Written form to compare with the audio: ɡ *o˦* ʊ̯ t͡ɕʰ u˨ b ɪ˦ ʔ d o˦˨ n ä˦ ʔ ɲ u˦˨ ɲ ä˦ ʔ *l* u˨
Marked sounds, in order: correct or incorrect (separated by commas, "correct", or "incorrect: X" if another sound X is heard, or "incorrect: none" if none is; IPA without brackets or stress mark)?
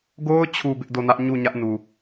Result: correct, incorrect: n